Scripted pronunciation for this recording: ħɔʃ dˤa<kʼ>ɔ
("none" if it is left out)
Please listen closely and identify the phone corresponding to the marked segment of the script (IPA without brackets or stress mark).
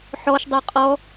qʼ